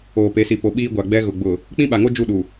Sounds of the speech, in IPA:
oː˨pe˨˦si˨ po˨ɓiː˦ɡʷa˨ ɡ͡bɛ˦ɣʊ˨ ɡ͡bʊ˨ | k͡pĩ˦ɓa˨ŋo˦ d͡ʒu˦˨ɗu˨

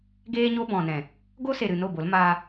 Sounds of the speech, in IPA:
ɡeː˦ɲo˦ bɔ̃˨nɛ̃˨ | ɡo˦se˨ɾɨ˨ no˦˨bo˨˦lmaː˧

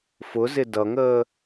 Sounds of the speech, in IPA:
fʊzɪ dʌŋəː

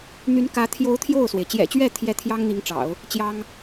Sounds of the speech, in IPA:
n̪y˧˥n kä˧˥ t̪ʰjo˧˥ʊ̯ t̪ʰjo˥˩ʊ̯swe˩ɪ̯ t͡ɕjɛ̰˨˩t͡ɕɥɛ˥˩t̪ʰjɛ˧˥ t̪ʰjɑ˥ŋn̪i˧˥ŋʈ͡ʂɑ̰˨˩˦ʊ̯ | t͡ɕjɑ˥ŋ

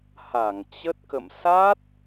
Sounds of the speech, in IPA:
ha˧˩ŋt͡ɕə˦˥t̚ kə̰˧˨m sa˦˥t̚

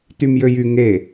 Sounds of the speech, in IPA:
tymjøjy ŋe

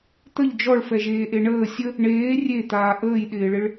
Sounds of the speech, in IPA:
t̪əʎ d͡ʒɔɭfɛʒeːʔe ɳəː sʲə | ɳeː rʲet̪aː ʔəːjɗɪːɭɪɭ

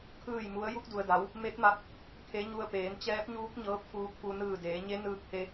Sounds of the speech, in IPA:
kʰɯː˥˨jmu˧˥ə̯ ju˧k̚du˩ə̯da˩˧w | me˧˥t̚ma˧p̚ | kʰe˧˥ɲu˧ə̯peː˩˧n t͡ɕɛː˧˥p̚ɲuː˧˥k̚ ɲɤː˧˥p̚ fuː˧˥k̚fu˧ nɯː˧˩deː˩˧ɲe˧˥ nɯː˧k̚he˧

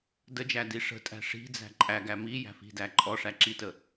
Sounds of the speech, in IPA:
dəd͡ʒæ diʂə̤tʼæ̤ ʂi̤d͡zæ̤ ǃʼæɡæ mi jæ̤fi̤dæ ǃʼɔʂæ ǁitə

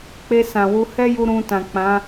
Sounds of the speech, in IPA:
k͡pe˧ sã˨wu˧ hɛ˦ju˧ ɾũ˧ tã˨k͡pã˨˦

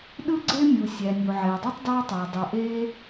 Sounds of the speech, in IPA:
ɗɯ˥ɡ͡ǀe˥mʲu˩ sʲæ˩nʲu˩ʕe˩ə̯dˤy˥tˤ dɑ˥tˤæ˩ dˤu˩ʔe˥

